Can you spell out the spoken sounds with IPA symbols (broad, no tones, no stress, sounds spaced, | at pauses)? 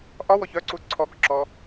ʔ ɒ w ɔ ç œ ǀ u ǀʰ ɔ k ǁ ɔ